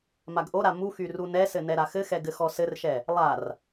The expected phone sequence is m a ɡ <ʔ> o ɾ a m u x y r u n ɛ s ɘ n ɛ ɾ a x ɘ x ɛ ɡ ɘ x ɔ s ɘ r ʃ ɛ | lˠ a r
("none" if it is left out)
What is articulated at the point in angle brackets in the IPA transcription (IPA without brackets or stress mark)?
ʔ